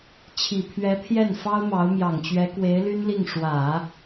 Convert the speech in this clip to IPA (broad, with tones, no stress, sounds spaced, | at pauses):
t͡ɕʰ i˨˩ pʰ ɥ ɛ˧˥ pʰ j ɛ˥˩ n f ɑ˥ ʊ̯ m ɑ˧˥ ʊ̯ m j ɑ˨˩ ŋ t͡ɕ ɥ ɛ˧˥ k w e˧˥ ɪ̯ l y˥ n l i˥˩ ŋ ʂ w ä˨˩˦